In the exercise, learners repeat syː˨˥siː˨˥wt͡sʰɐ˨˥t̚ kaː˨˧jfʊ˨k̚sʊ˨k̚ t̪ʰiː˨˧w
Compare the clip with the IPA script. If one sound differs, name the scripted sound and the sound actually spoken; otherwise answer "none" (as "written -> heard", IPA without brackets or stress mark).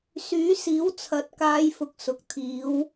none